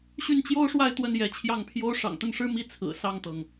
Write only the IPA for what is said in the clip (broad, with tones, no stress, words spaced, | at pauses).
ɕy˥˩nt͡ɕjo˥ʊ̯ʂwa˥˧ɪ̯ t̪wə˥˩n jɛ˧˥t͡ɕʰjɑ˥˩ŋpʰjo˥ʊ̯ ʂɑ̰˨˩ŋt̪ə˥˩nʂɻ̩˥ mi˥ t͡sʰɹ̩˨˩ sɑ˥˩ŋt̪ɤ˩ŋ